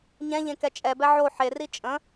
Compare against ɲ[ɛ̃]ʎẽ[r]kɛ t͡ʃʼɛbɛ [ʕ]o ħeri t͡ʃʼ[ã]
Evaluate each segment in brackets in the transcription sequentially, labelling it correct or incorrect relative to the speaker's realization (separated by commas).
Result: correct, incorrect, correct, incorrect